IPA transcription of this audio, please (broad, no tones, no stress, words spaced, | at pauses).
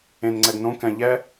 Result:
ẽnŋ͡ǀɛɡ nõ kɛ̃ ʎɛ